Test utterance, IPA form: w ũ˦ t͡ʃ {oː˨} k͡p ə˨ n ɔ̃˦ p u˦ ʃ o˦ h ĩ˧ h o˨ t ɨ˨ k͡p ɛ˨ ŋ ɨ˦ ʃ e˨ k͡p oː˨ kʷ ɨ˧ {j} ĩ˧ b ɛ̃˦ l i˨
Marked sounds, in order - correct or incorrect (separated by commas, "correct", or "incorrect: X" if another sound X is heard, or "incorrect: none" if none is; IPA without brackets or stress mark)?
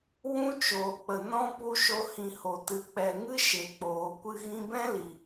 correct, incorrect: ɣ